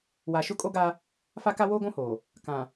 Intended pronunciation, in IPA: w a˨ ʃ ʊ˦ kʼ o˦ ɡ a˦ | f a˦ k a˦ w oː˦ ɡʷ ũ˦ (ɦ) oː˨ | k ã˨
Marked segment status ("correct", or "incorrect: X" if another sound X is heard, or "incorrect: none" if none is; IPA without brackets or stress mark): incorrect: h